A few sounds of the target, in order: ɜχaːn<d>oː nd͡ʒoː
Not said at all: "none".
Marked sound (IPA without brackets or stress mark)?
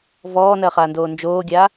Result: d